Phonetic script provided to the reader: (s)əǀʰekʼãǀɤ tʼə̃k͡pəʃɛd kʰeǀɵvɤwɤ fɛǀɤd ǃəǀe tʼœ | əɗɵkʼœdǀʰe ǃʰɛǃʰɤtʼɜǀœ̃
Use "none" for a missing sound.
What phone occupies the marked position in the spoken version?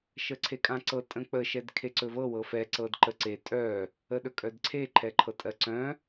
ʃ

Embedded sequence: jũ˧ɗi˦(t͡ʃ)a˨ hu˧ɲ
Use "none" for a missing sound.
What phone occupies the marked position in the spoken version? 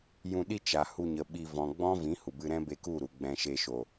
t͡ʃ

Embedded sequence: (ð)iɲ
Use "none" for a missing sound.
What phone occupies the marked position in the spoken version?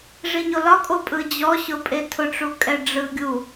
ʐ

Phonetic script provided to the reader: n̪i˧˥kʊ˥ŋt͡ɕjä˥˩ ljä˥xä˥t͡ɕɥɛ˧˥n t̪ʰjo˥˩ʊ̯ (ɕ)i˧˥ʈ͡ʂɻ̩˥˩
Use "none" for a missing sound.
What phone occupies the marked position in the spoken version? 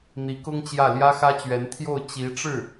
t͡ɕ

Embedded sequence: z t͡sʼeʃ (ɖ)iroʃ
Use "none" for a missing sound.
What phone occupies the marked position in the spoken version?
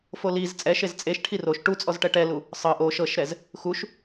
ʈʰ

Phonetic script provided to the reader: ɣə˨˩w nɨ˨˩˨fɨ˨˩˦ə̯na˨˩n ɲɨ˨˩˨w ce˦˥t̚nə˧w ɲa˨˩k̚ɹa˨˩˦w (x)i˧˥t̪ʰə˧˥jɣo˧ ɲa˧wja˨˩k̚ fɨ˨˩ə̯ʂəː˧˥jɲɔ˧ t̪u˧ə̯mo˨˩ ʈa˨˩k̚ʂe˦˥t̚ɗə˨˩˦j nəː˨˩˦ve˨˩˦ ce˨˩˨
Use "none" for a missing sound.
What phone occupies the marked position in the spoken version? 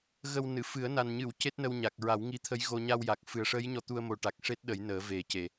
ŋ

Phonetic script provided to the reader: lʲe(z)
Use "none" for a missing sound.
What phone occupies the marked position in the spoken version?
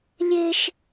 ʃ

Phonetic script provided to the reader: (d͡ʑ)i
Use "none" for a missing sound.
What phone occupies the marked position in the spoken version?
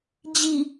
d͡ʑ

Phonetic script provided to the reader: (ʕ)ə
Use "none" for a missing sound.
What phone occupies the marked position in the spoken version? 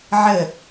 ʕ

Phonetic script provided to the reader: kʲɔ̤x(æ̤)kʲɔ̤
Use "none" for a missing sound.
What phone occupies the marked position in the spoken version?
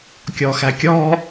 æ̤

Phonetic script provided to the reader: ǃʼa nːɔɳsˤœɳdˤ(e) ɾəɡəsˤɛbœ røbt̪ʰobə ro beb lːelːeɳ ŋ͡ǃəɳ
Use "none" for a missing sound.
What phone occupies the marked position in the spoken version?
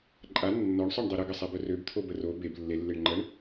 e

